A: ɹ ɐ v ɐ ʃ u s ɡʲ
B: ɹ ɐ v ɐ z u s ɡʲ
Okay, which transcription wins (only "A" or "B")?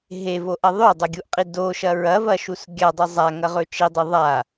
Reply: A